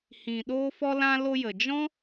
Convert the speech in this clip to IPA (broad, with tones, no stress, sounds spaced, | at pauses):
h ĩ˨ ɗ oː˧ f ɔ˧ l ã˧ l o˧ j ə˨ d͡ʒ ɔ̃˦